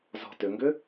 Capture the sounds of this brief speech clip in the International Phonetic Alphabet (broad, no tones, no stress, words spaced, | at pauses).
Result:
zɔ̤tʏŋɡʏ